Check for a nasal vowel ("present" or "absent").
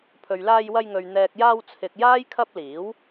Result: absent